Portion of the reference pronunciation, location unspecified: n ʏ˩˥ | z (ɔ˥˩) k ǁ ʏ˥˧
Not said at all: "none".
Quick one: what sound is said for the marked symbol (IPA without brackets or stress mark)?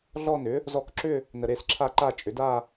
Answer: ɔ˧˥